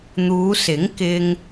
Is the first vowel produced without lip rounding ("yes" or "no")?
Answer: no